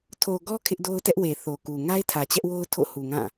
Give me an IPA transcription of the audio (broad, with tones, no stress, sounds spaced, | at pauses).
tʰ o˨ ɡ ɔ˦ kʰ ɪ˦ ʔ d o˦ ʊ̯ t ɛ˦ ʔ w e˨ θ o˨ k u˨ ŋ a˦ ɪ̯ tʰ ä˨ t͡ɕ ɛ˦ ʔ w o˦ ʊ̯ tʰ o̰˦˨ h u˨ ŋ ã˦˨